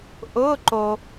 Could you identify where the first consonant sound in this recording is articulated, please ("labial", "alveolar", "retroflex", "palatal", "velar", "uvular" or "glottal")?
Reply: glottal